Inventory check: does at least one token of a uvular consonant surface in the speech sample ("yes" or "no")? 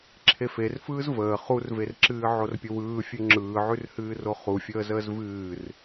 yes